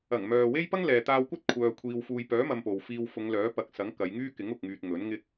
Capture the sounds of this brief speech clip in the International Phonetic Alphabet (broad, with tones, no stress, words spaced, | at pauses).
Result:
ɐ˨˩ŋmœː˨we˥j pɐ˥ŋlɛː˨t̪aː˧wkʷɐ˥t̚ kʷʰœː˧kʷʰiː˧w fuː˨jpœː˨˥ mɐ˧m po˨wfiː˧w fʊ˨˧ŋlœː˨˥ pɐ˨˥k̚sɐ˨˥ŋ kɐ˨˧jŋyː˥ kɪ˨˥ŋʊ˨k̚ŋyː˨t̚ ŋɵ˨˥nŋɪ˥k̚